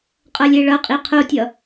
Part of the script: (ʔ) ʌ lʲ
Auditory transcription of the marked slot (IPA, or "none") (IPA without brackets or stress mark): qʼ